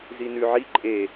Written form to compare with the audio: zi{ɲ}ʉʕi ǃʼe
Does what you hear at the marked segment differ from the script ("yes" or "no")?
yes